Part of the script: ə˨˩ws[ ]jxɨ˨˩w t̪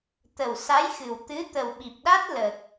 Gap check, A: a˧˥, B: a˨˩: A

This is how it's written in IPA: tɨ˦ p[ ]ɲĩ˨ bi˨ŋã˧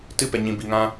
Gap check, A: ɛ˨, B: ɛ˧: A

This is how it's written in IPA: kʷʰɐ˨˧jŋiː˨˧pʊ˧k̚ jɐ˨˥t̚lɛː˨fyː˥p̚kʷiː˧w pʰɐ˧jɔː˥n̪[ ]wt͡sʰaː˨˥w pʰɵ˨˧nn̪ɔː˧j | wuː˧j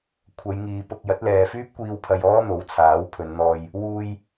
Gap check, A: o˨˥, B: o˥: A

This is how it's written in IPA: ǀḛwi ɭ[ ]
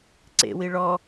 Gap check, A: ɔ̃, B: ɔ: B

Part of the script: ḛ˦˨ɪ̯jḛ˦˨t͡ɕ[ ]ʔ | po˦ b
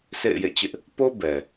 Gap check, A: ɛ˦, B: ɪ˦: B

